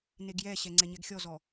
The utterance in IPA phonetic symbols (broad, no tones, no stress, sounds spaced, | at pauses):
n e ɡ j ɛ ɕ ɛ ŋ͡ǀ ɛ ɲ ɛ ɡ xʲ ɔ z ɔ